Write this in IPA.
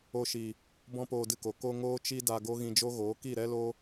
o˧ ʃ i˨ | b ɔ̃˦ p oː˧ d ɨ˧ k o˨ k o˧ ŋ oː˦ t͡ʃ i˦ d a˧ ɡ o˦ ɣ ĩ˧ d͡ʒ o˦ ɣ oː˨˦ k i˦˨ ɾ ɛ˦ l o˦

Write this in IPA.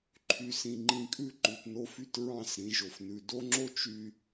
ǃʰ y˨ s ĩ˨ ŋ͡ǃ ĩ˨ kʼ ʉ˦ ǃ ʉ˨ t n o˦ f y˦ t ɹ ɑ̃˦˨ s ɾ ĩ˨ ʒ o˨ f n ʉ˨ d o˦ ŋ͡ǁ o˦ t͡ʃ y˨

